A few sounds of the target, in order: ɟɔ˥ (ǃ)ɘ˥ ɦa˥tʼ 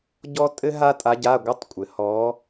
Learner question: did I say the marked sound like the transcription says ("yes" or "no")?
no